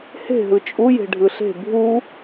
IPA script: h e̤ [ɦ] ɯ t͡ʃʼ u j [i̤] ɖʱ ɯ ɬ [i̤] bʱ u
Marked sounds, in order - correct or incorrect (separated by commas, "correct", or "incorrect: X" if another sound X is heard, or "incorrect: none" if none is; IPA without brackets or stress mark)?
correct, incorrect: e̤, incorrect: e̤